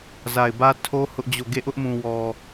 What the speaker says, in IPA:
z a˨ ɪ̯ b ä˦ tʰ o˦ h ʊ˦ ʔ d͡ʑ o˦˨ ɡ e˦˨ ʔ ʊ˦ ʔ m ũ˨ w ɔ˨

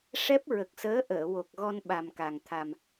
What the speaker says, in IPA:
ʂ ɛ˦˥ p̚ ɹ ə˨˩ k̚ s əː˧˥ ʔ əː˨˩˨ w o˨˩ k̚ ɣ ɔ˧ n ɓ a˨˩ m k a˨˩ ŋ t̪ʰ a˨˩ m

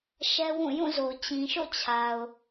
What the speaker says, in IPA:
ʃ ɛ˦ w ũ˦˨ j ũ˦˨ z o˨ t͡ɕ ĩ˨ ʃ o̰˦˨ t͡ɕʰ a˨ ʊ̯

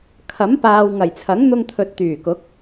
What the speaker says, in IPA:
kʰ ɐ˨˥ m p aː˨ w ŋ ɐ˨˩ j t͡sʰ ɐ˨˥ ŋ n̪ ʊ˧ ŋ t̪ʰ ɵ˨ t̚ t̪ yː˨˩ k ʊ˨˥ k̚

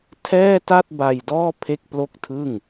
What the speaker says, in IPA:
tʰ ɛː˥˩ t a˥˩ t̚ b a˧ j d ɔː˥˩ pʰ e˥˩ k̚ p l o˥˩ k̚ tʰ ɯ˥˩ ŋ

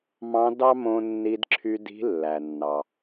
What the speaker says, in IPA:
m ɑ̃˧˥ d ɑ˥ m õ˧ nː i˧ d ǁʰ y˧ d i̤˧˥ lː æ˩ nː ɑ˩

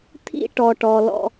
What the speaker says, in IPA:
t̪ʰ ḭ˦ ʈ ɔ˨ ʈ ɔ˨ l ɔ̰˦

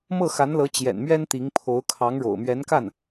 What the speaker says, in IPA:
m ɤ˥˩ x a˧˥ n l ɤ˧˥ t͡ɕ j ɛ̰˨˩ n m ɥ ɛ˥ n t̪ i˧˥ ŋ pʰ o˧˥ ʊ̯ kʰ ɑ˧˥ ŋ ɻ o̰˨˩ ʊ̯ m ɥ ɛ˧˥ n k a˥˩ n

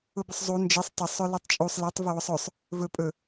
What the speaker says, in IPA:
ʊ b ʊ sˤ zˤ u n d͡ʒ e sˤ tˤ ʊ sˤ ɵ l ɛ tˤ t͡ʃʼ u sˤ l e tˤ v ʊ w ʊ sˤ ɵ sˤ | v ɵ pʼ ɵ

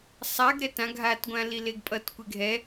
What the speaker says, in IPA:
sˤ a ɡ ɾ ɛ t ã ɡʱ a t ɡʷ ã l i l e ɡ pʼ ʌ t kʷ e ɡʱ ɛ

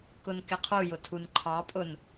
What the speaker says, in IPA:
k ʊ n k ɪ qʰ u j ʊ tʰ u n ǃʰ ɑ pʼ ʊ n

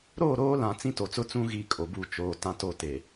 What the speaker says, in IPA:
ɾ oː˦˨ ɾ oː˦ l ã˨ t͡s ĩ˦ t o˨ t͡s ʊ˦ t͡s ũ˦ ɣ i˦˨ kʼ o˨ b u˦˨ t͡ʃ oː˨ t ã˦ t o˦˨ t e˨

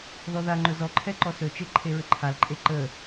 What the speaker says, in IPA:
ð ɔ ð a ŋ͡ǃ ɵ z ɔ ǃʰ ɛ ǃ ɔ s ɵ t͡ʃ e ǃʰ e ɹ ə ǃʰ a l ǃʼ e ǃ ə

